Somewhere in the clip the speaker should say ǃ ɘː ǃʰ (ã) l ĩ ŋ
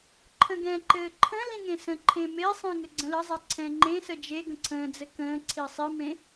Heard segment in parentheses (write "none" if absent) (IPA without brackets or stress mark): ə̃